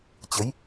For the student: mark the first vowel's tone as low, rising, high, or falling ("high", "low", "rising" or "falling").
rising